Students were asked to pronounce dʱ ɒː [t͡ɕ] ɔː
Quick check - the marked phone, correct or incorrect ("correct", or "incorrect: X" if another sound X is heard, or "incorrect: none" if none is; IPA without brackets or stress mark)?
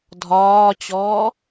correct